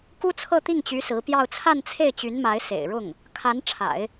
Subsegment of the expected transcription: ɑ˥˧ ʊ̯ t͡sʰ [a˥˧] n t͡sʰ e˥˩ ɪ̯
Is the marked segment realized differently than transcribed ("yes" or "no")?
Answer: no